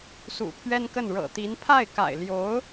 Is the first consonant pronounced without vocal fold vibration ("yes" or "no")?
yes